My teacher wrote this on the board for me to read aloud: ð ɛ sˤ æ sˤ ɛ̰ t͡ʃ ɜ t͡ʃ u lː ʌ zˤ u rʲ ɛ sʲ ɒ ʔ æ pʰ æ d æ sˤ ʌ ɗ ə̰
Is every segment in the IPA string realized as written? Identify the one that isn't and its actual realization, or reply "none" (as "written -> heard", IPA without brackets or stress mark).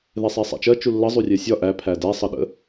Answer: none